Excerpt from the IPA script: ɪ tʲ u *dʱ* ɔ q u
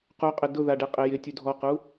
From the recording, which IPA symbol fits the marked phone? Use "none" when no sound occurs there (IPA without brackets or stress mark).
dʱ